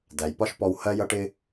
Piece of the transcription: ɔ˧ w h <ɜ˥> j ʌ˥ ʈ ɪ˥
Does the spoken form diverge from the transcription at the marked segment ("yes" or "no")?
no